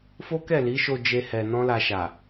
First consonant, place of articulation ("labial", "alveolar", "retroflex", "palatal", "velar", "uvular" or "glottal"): labial